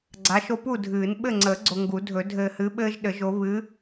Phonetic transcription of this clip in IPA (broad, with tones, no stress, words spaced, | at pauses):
ɡ͡ǀa˨˦ʃo˦pu˥˨dʱɨː˨˩˦n ɓɘ˥˨ŋ͡ǀəː˨˩˦ɡ͡ǀo˨ ŋɡu˨˩˦dʱɵ˨˩˦ dʱɘː˨hɨ˨˦ɓɘː˦ʒ ɗɘ˨˩˦ʒo˨˦ βɨ˨˦